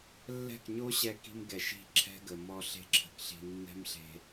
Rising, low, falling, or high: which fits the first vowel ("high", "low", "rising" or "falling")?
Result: falling